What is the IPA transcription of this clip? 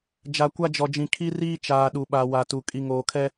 d͡ʒ a˨ kʷ a˦ d͡ʒ ɔ˨ d͡ʒ ĩ˨ kʰ i˦ r iː˦ t͡ʃ aː˨ ɗ u˨ ɓ a˨ w a˨ t u˨ kʼ i˨ ŋ oː˨ kʰ ɛ˦

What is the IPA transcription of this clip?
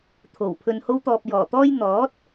t̪ʰ o˨˩ w pʰ ɵ˨ n h o˧ w t̪ ɔː˨ p̚ j ɔː˨˩ t̪ ɔː˥ j n̪ ɔː˨˥ t̚

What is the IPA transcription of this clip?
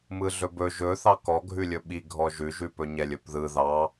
m ɯ ɮ ɵ b ɵ ʒ ɵ θ ɑ k ɔ ɡʱ ʉ lʲ ɵ ɓ i ɡʱ ɔ ʒ ʉ ʒ ʉ p ɵ ɲ ɛ lʲ ɵ p ð ɯ ð ɑ

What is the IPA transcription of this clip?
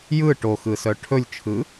j ɯ ʈ o x ɯ s œ ʈʰ ɵ lʲ t͡ʃʰ ɯ

